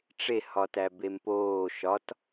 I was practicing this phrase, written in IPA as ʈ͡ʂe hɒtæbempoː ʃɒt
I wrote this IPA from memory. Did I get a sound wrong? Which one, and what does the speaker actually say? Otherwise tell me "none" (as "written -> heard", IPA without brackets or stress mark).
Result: none